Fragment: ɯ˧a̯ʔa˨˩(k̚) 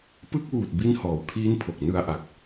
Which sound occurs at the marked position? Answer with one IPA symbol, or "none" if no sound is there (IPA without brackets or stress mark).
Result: k̚